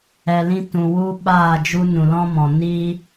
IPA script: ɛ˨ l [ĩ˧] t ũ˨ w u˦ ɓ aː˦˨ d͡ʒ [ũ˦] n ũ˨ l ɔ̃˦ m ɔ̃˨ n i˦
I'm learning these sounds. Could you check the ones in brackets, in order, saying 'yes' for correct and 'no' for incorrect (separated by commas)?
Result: yes, no